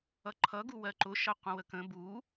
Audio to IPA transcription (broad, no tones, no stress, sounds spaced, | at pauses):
ʌ ǃʰ ʌ ɡ u w ɜ ǃ ʊ ʃ ʌ qʷ ə̃ w ə k ə̃ b u